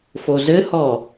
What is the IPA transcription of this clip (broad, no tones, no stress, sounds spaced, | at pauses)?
f o z ɘ h ɔ